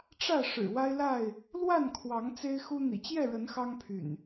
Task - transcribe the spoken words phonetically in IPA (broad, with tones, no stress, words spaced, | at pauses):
ʈ͡ʂä˥˨ ʂɻ̩˨˩wa˦ɪ̯la˥˨ɪ̯ | lwa˥˨nkʰwɑ˨˦ŋ t͡se˦ɪ̯xu˦ n̪ḭ˨˩t͡ɕjɛ˥˨ɻə˨˦n xɑ˦ŋpʰy̰˨˩n